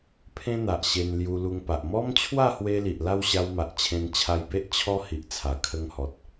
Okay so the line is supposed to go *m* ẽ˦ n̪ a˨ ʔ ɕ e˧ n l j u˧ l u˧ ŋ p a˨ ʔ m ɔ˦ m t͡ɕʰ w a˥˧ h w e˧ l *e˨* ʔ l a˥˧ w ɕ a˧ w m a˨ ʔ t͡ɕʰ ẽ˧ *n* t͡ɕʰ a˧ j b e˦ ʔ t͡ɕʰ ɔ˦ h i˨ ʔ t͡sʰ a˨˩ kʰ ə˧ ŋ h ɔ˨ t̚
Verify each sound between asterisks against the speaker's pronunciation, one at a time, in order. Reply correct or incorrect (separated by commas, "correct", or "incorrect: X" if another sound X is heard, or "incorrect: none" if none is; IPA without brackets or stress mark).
incorrect: pʰ, incorrect: i˨, correct